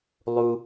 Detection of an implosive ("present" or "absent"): absent